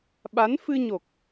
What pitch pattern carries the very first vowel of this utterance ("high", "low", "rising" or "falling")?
rising